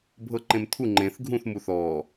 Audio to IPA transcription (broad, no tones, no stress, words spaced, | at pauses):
bʱɤǃẽmt̪ʰu ŋ͡ǃẽθ ɡʱũθ muθɔː